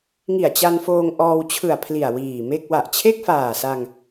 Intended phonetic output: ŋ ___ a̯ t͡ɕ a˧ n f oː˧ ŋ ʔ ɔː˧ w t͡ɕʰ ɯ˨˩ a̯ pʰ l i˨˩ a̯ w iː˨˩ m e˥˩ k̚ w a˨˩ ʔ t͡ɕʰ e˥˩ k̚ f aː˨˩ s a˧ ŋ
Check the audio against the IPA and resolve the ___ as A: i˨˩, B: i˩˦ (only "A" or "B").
A